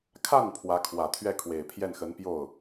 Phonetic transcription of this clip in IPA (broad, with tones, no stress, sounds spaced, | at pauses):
kʰ a˥˩ n pʰ w ä˧˥ kʰ w ä˨˩ t̪ʰ ɥ ɛ˥˩ kʰ w e˨˩ ɪ̯ pʰ j ɛ˥˩ n x ə˧˥ n p j o˥˩ ʊ̯